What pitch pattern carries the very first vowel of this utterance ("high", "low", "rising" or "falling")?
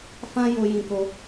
high